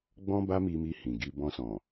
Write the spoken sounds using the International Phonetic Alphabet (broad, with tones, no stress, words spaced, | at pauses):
ɡ͡bɔ̃˦ba˦mi˧mi˧ hĩ˨ɡi˧ bɔ̃˧sɔ̃˨